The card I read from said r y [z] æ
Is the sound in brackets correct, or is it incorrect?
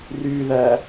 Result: incorrect